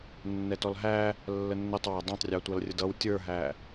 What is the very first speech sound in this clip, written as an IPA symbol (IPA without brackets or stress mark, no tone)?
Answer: nː